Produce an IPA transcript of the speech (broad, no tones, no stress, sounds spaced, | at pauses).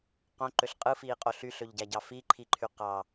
q õ ǃ ø ɬ qʼ ɯ f iː qʼ o ɬ y ɬ ø ʎ ɟ æ ɟ ɑ f i ǃʰ i ǃʰ y q ɑ